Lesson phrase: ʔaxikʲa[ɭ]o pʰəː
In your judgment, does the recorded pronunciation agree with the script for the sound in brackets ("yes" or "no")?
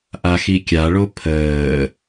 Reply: yes